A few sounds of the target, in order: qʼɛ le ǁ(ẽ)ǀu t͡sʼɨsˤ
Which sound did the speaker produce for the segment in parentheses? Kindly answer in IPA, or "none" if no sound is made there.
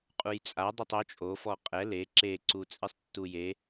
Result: e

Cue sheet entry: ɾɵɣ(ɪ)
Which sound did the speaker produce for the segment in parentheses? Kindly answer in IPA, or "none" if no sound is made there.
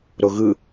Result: ɨ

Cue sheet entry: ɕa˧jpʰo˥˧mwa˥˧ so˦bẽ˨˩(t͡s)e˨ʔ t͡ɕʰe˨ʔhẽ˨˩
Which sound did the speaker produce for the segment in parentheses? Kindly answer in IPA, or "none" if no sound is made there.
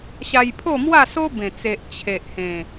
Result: t͡s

